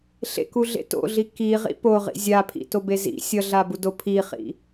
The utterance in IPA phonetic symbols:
ɬ ḛ k u ɮ ḛ t o̰ ɮ i k i ʁ ḭ p o ʁ ḭ zʲ a pʰ ḭ t o b e z ḭ sʲ ʌ ɮ a b u d o pʰ i χ ḭ

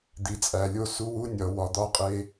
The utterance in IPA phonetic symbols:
d̪ i˨ t͡sʼ æ˨ lʲ o˦ s u˦ w u˦ nʲ ɒ˨ w ɒ˨ d̪ ɒ˦ qʼ e˦

